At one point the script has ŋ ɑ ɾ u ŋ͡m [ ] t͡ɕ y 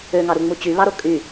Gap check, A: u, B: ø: A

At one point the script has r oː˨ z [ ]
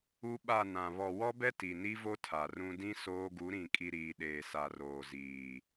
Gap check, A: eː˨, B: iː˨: B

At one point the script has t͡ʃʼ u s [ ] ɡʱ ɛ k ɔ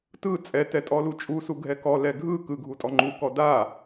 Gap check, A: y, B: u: B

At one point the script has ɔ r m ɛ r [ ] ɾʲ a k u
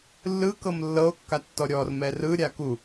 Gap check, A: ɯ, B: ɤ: A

